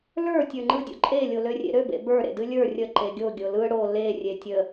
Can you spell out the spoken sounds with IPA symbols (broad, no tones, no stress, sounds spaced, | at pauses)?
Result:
l ə˞ tʲ ə˞ ŋ͡ǃ ɯ dʲ o̰ ǃʼ e lʲ o l ø rʲ ḛ ɾ ø b ḛ b ə˞ ɾ ḛ d ɨ lʲ ə˞ rʲ ə ǃ e ɡʲ o ɡʲ o l ɯ ɽ o l e rʲ e tʲ ə